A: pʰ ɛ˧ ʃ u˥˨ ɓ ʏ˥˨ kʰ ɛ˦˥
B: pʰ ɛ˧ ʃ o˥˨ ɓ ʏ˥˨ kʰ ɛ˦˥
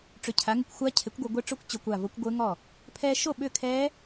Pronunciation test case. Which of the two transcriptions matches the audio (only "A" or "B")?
B